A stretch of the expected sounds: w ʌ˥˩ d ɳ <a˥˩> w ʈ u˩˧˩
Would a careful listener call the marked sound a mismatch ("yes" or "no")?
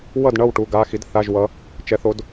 yes